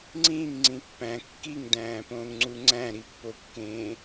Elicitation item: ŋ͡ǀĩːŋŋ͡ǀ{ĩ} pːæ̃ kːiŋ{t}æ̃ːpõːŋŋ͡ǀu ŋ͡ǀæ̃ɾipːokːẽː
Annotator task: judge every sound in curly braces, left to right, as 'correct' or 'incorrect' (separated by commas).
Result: correct, incorrect